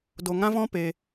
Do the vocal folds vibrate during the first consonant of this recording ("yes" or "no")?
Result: yes